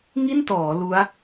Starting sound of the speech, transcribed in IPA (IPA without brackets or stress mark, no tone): ŋ